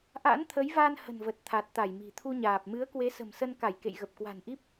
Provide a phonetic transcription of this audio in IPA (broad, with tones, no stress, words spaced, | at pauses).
ʔa̰˧˥nt̪ʰə˨˦jva˧n hə̤˨˩nvə˨˩t̚ t̪ʰa˨˩t̚t̪a˧˩jmi̤˨˩ t̪ʰu˧ɲaː˨˩p̚ mɨ˨˦ə̯kwe˨˦sə̤˨˩m sə˧nka˧˩j kḛ˧˨jɣə˨˩p̚kwa̤˨˩nʔi˦˥p̚